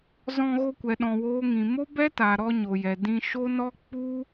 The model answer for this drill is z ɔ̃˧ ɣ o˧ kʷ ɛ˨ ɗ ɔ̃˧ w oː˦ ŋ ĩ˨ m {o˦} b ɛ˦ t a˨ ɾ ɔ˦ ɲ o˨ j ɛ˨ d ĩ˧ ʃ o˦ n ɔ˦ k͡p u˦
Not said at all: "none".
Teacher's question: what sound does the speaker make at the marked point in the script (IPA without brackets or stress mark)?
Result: o˦